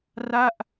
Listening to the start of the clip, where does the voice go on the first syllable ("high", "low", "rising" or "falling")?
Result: falling